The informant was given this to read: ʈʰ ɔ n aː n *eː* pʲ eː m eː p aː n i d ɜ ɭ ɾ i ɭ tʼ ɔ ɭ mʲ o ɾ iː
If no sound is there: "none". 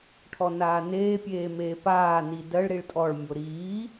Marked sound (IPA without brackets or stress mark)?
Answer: eː